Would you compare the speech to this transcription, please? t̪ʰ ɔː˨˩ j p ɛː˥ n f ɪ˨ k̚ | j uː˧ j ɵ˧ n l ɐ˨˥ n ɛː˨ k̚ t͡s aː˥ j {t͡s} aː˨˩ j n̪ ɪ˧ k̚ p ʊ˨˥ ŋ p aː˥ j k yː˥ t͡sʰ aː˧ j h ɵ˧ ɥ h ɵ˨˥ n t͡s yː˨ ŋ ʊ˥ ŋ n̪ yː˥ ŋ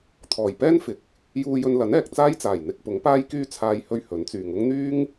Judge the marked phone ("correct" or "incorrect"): correct